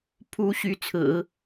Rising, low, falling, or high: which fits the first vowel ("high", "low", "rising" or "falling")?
rising